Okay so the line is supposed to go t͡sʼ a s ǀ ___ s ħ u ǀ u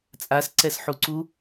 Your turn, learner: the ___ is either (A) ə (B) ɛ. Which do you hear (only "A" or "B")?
B